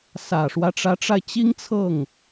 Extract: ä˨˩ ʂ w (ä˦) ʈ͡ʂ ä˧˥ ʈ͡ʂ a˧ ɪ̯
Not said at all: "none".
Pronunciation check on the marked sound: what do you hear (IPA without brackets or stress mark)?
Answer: ä˦